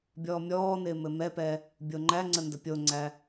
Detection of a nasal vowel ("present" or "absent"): absent